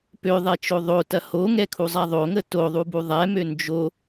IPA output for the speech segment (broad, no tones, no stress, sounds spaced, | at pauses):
p ø ðˤ ɛ t͡ʃ o ðˤ o t ɐ h o ŋ ɛ kʰ u zˤ a ðˤ o ŋ ə t o ðˤ u b u ðˤ ɛ m ø n d͡ʒ o